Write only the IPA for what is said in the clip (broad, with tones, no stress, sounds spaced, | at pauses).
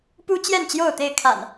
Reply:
p u˦ t͡ɕ j ɛ˥˨ n t͡ɕ j o˥˨ ʊ̯ t̪ e˥˨ ɪ̯ kʰ a̰˨˩ n